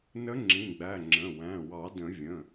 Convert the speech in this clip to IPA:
nə˧˥ŋ͡ǁĩ˩˧˩ɡ͡bæ˩˧˩ ŋ͡ǁə̃˩˧˩wæ̃˩˧˩wɑ˨˩˦ də̃˨˩˦vʲə̃˩˧˩

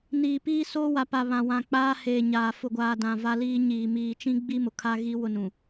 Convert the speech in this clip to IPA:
niː˨piː˦soː˦ wa˨pa˨ βã˨wã˨ k͡paː˦heː˨ɲaː˨ fʊ˨ɡʷaː˨dã˨ va˦liː˦ɲiː˨ miː˨t͡ʃĩ˦ɡ͡bi˦ mʊ˨kʰa˦ɣi˦ wʊ˦nũ˨

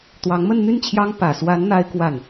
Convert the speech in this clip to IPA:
t̪wɑ˧˥ŋmə˥˧nn̪y˥˩n t͡ɕʰjɑ˥ŋ pä˨˩swa˧˥n n̪a˥ɪ̯kwa˥˩n

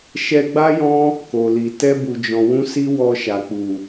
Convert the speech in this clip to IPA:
ʃɛ˧ɡ͡ba˦jɔ̃˦ | ko˨li˨ tɛ˧bu˨d͡ʒɔ̃˨wũ˧ si˦wɔ˧ʃa˨ k͡pu˨

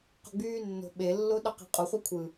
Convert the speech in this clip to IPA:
qo̤ɡ͡byːnːo̤ ɓe lːoɗɑqe̤qʼu χʷækʷʰɯ

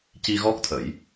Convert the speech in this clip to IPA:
ci˧ɣɔ˦˥k̚t̪ʰə˨˩˦j

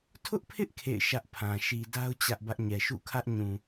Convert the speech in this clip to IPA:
tʰʊ˦ʔpʰɪ˦ʔ kʰḛ˦˨ɪ̯ ʃä˦ʔpʰã˨ ʃi˨da˦ʊ̯ t͡ɕä˦ʔbä˦ʔ ɲɛ˨ʃṵ˦˨kʰä˦ʔ ɲũ˨

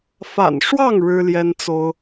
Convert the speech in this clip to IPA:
fa̰˨˩nʂwɑ˥˨ŋ ɻɻ̩˦ljɛ˦nt͡so˦ʊ̯

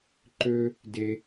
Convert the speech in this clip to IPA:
ǃø˦ | de˧

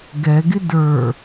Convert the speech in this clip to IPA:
ɡɛɡɪ də˞

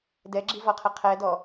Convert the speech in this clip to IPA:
dɛɡ͡ǁivɔqʰɘ qʰɛdɔ

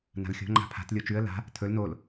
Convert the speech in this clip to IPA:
na̤lxʲo̤ ŋ͡ǃa̤pʰa̤t lʲot͡ʃʉə̯ la̤ | tʰɵl nol

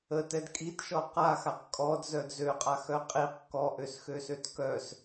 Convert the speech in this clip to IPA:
ətɛd kʼitʃɔ qaxaq kʼɔdzœd zøqʼaxœ qʼiq kɔʔøsxøsøt kœs

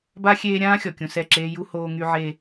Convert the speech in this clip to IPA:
ba˦xʲeː˦ ɾʲãː˦xʲɔ˨kʲũ˨ sɛ˦˨ǁeː˦ ju˦ hoː˦ŋy˦ʕe˦

